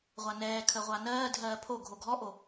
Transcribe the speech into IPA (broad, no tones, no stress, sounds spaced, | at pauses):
ʁʷ a n ɛː kʰ ə ʁʷ a n ɜː dʱ ɜː pʰ o ɡʱ o ɡʱ ɔ ʔ o